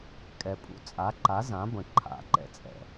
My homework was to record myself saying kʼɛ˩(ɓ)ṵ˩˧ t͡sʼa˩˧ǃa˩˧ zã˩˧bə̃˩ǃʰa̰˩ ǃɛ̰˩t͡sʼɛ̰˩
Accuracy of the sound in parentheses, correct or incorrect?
incorrect: pʼ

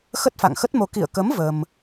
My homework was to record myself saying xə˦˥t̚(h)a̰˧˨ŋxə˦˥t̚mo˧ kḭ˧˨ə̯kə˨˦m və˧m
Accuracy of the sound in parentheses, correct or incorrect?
incorrect: f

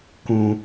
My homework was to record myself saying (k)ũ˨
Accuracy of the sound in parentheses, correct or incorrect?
correct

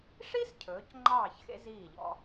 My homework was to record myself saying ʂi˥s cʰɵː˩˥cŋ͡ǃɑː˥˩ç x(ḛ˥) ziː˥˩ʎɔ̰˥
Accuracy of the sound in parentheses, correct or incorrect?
correct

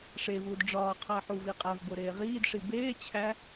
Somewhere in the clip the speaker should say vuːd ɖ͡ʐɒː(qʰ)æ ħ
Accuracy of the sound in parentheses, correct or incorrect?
correct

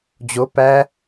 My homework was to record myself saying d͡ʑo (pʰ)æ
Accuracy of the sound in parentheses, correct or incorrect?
incorrect: p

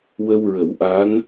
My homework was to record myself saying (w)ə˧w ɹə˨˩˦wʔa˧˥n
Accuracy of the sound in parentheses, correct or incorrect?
correct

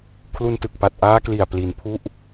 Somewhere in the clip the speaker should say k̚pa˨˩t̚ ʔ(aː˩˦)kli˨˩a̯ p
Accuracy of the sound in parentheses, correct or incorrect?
incorrect: aː˦˥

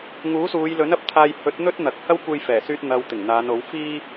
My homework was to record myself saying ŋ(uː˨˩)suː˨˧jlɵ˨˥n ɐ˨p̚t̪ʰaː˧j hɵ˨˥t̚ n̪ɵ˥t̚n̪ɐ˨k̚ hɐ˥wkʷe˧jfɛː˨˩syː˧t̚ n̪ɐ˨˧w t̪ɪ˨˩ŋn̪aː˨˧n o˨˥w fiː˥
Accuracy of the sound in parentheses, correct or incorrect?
incorrect: uː˨˥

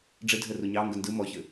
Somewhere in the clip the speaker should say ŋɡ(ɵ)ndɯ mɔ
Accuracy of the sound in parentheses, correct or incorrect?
incorrect: ə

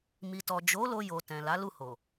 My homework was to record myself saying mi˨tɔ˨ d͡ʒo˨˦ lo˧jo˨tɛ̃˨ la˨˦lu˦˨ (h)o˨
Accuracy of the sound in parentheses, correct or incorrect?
correct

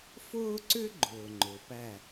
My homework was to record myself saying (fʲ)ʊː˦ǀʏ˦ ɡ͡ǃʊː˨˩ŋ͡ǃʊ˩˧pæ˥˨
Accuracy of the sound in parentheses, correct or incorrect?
incorrect: f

